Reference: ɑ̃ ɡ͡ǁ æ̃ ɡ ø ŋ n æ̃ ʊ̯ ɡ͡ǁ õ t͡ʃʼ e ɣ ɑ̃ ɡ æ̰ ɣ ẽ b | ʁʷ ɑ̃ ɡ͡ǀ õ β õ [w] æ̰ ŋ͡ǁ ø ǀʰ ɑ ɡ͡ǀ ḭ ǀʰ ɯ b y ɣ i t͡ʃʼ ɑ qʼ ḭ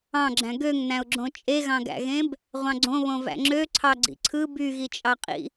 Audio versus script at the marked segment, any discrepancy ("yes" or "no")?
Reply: yes